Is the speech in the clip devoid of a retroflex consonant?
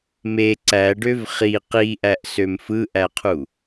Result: no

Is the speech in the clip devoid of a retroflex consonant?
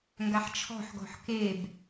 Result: yes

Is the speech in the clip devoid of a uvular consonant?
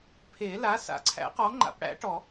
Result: no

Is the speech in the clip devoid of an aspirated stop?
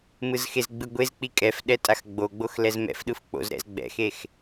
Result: yes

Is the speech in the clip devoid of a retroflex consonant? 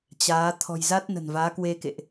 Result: yes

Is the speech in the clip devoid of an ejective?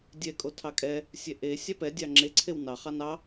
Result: no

